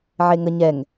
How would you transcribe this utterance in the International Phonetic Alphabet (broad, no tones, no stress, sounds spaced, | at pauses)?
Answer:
ʕ e ŋ ə ɲ ɛ ŋ